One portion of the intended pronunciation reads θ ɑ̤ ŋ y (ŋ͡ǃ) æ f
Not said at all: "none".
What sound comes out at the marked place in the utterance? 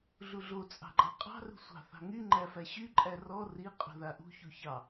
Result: ŋ͡ǃ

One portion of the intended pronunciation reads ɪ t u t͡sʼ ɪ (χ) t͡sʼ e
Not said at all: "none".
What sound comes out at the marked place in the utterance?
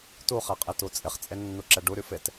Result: χ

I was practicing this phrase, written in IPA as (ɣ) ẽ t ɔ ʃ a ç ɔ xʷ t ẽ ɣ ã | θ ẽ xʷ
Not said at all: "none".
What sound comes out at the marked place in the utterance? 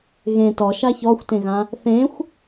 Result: ɣ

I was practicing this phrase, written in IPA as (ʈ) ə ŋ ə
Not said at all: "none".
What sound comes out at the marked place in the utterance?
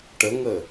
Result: ʈ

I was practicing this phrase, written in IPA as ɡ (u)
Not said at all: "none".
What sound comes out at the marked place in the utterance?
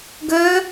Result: ø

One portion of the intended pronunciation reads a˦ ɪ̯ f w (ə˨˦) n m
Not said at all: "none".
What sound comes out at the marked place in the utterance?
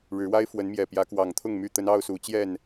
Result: ə˨˦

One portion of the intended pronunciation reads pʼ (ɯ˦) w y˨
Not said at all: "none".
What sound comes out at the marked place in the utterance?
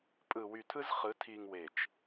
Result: ɯ˨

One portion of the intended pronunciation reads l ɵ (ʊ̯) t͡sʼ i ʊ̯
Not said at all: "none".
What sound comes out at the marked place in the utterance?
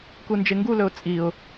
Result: ʊ̯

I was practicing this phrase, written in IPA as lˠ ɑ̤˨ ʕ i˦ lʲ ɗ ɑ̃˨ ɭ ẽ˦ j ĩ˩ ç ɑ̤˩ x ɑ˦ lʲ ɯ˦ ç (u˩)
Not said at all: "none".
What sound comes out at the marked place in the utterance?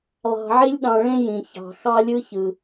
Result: ɯ˩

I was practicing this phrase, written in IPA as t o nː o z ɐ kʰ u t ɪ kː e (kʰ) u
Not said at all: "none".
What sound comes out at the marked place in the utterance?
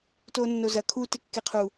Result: qʰ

